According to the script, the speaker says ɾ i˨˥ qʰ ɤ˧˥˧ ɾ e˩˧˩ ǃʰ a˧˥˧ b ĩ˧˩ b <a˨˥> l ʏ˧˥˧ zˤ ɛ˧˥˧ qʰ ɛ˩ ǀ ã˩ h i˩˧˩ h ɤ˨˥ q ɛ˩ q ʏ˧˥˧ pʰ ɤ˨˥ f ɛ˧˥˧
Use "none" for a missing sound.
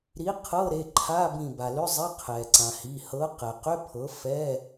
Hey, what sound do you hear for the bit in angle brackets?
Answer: a˩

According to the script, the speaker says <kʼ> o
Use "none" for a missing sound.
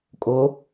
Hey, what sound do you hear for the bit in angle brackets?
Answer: kʼ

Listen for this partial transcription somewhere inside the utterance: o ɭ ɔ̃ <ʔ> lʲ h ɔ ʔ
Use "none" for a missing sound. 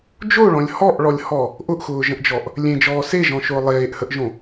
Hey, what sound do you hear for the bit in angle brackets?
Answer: none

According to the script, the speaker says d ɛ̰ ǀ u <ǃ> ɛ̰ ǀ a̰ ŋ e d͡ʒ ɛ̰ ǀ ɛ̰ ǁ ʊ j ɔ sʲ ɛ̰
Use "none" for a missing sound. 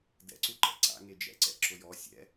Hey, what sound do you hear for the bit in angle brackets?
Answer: ǃ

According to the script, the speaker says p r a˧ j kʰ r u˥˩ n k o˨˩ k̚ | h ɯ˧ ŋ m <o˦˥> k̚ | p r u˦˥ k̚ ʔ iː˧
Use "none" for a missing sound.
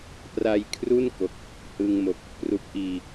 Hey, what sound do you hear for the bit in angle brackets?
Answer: o˨˩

